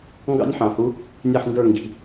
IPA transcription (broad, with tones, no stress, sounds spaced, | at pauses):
ŋ ɡ ɑ̰˥ nʲ ħ ɑ̃˧˩˧ h u˧˥ | nʲ ɛ˥˩ ħ n d ə˞˥˩ ŋ ɡ i̤˩˧˩